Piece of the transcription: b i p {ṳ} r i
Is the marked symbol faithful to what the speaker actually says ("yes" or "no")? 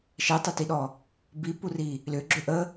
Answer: no